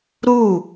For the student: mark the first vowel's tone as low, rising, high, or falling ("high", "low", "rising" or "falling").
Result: falling